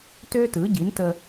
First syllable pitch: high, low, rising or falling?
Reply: high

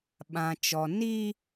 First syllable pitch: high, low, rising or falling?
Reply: low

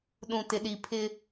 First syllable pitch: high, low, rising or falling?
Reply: low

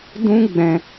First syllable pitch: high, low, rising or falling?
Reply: high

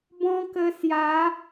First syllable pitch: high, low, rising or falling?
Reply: high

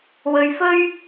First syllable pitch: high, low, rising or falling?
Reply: low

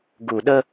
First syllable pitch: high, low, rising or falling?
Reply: low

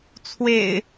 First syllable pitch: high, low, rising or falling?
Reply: low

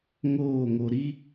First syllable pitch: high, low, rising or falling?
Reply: falling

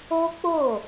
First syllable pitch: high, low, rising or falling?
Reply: high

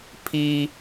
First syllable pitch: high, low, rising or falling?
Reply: high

